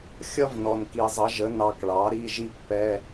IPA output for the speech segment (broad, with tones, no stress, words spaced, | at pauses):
xʲʌ˥vnɔ˨˩n ki˨˩zˤʌ˩˥ʒə˩˥ nɑ˧kɭɑ˩˥ ɾi˧˥˧ʒi˥pːɛ˧˥˧